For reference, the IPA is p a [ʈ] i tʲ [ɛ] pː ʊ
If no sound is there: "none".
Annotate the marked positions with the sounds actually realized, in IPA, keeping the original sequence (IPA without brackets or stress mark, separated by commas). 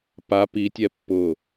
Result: p, ɛ